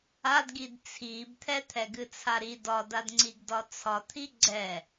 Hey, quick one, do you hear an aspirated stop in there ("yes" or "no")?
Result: yes